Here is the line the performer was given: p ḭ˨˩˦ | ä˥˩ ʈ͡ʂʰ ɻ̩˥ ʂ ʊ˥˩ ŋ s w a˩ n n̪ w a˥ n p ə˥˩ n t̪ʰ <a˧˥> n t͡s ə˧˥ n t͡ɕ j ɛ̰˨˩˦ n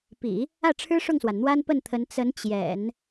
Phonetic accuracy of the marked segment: incorrect: ə˧˥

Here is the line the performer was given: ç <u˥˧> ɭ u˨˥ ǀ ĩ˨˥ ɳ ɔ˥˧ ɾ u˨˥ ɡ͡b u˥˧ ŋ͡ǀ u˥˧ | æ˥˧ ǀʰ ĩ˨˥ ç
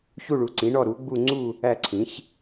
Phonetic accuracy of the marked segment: correct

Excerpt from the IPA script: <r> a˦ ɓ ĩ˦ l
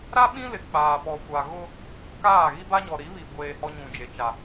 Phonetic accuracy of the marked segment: incorrect: ɾ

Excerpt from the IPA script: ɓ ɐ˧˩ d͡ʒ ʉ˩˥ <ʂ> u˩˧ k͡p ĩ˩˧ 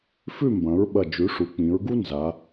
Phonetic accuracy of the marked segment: correct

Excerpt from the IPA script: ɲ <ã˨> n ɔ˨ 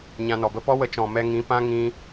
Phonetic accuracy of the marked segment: incorrect: ã˧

